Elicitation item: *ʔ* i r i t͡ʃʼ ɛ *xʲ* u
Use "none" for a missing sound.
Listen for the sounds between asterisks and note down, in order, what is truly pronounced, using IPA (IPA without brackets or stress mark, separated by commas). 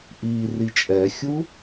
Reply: ʔ, xʲ